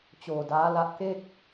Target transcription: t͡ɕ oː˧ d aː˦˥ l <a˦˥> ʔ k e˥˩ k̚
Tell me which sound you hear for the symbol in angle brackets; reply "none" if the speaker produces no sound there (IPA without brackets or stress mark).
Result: a˦˥